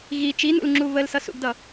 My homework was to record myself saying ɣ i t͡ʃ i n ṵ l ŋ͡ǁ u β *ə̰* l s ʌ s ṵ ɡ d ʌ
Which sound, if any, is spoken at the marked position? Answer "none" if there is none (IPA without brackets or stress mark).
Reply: ə